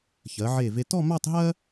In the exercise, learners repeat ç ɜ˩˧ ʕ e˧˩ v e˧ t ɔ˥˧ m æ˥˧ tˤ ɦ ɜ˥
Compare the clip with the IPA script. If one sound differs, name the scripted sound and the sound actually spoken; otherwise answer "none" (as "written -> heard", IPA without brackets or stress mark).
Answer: none